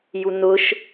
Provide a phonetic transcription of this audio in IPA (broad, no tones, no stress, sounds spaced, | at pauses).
j u n̪ ʊ ʃ